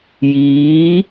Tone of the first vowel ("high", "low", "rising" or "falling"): rising